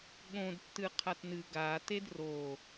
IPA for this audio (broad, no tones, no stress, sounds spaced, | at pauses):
ɠ õ d tː ɨ qʰ a t n ɨ ɡ a t e d r o